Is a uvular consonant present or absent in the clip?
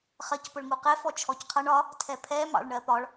present